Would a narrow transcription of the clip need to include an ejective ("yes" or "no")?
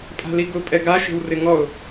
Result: yes